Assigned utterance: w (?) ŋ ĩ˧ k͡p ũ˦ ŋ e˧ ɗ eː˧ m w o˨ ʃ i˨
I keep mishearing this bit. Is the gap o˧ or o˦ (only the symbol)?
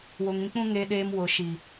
o˧